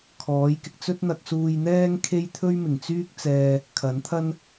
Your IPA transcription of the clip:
kʰɔː˨˥jkɪ˨k̚ t͡sɵ˥t̚n̪ɐ˧k̚suː˧jn̪ɛː˥ŋ kʰe˥jt̪ʰɵ˥ɥmɪ˨˩ŋt͡syː˥k̚ t͡sɛː˧ | kʰɐ˨˥nt̪ʰɐ˥n

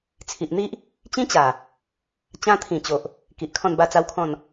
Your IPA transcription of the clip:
t͡sʰi˨ʔn̪i˦ʔ | t͡ɕĩ˦t͡ɕa˨˩ | t͡ɕã˧t̪ʰĩ˨˩ t͡ɕo˨ʔ | ki˨ʔkʰɔ̃˥˧nba˥˧ t͡sa˦wkʰɔ̃˥˧n

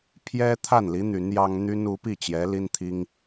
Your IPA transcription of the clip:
pʰjɛ˥ t̪ʰa˥˩nli˧˥ n̪y˧˥njɑ˥ŋ n̪y˥nu˧˥pi˥˩t͡ɕjɛ˧˥ li˥nt̪ʰi˥ŋ

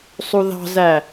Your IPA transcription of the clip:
sˤuðɑ̤zæ

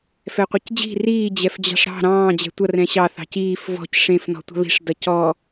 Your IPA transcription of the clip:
fɛqʷəcd͡ʑi̤ riː d͡ʑɛfd͡ʑɑ̤ʂɾɑ̤ ɾɑ̃ː d͡ʑɛ̤tʷʌr ɛ̃ɕɑ θɑ̤ciːf vɔ̤c ʂẽf nɔ̤tʷɑ̤βi̤ʂ dʌcɔ

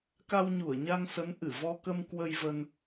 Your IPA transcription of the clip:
ka˧wɲu˧˩ə̯ɲa˧ŋsə˨˦n ʔɨ˧˩vɔ˧kə˧m kwə˧jvə˧n

